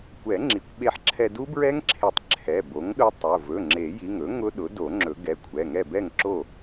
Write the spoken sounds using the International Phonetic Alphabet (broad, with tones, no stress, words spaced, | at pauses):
kʷɛ˨˩˦ŋ͡ǁi˩˥kʷ ɓe˧ħǁʰɛ˧ du˦˥bɹɛ˦˥ŋǁʰe˨˩˦tˤ ǁʰɛ˩˧˩bo˩˥ŋɗʊ˦˥tˤʊ˩˧˩ vɵ˩˧˩ŋ͡ǁe˨˩˦ji˩˧˩ŋɵ˩˥ ŋʊ˦˥ɗʊ˩˥ do˨˩˦ŋ͡ǁɵ˨˩˦ ɡɛ˩˧˩kʷʰɛ˩˧˩ŋɛ˥˨ bɛ˥˨ŋǁo˥˨